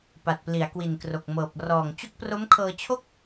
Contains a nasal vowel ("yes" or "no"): no